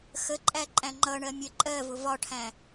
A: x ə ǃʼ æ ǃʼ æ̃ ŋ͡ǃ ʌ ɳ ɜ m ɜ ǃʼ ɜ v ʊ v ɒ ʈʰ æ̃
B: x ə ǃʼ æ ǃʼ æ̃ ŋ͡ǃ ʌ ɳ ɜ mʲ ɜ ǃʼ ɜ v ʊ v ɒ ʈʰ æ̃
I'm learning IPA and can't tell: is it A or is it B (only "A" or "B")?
B